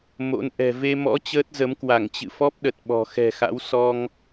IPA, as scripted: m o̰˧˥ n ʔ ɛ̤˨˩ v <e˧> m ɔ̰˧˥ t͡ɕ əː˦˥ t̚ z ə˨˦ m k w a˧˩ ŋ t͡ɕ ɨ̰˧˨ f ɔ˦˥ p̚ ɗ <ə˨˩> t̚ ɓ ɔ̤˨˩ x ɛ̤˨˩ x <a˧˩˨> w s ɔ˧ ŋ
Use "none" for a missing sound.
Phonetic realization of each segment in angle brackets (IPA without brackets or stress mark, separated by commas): e˧, ə˨˩, a̰˧˥